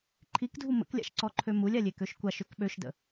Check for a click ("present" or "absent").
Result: present